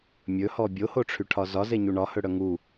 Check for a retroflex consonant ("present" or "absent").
present